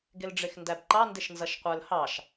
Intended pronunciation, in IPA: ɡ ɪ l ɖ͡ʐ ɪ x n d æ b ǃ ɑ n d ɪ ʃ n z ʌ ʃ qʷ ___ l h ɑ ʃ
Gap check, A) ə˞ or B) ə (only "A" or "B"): A